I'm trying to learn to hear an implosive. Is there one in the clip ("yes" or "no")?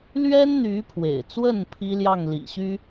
no